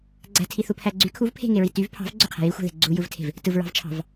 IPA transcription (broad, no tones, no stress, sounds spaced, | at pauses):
ɡ͡ǀ æ̤ tʰ i θ u pʰ æ ɡ͡ǀ y kʰ u v pʰ e̤ ŋ e ɹ i t y v pʰ ɑ̤ v ɡ͡ǀ ø qʰ æ̤ j i xʷ æ̤ ð e̤ ɡ͡ǀ u j ɯ v tʰ e̤ v | t ɯ v ɹ ɑ̤ v t͡ʃʰ ɑ̤ v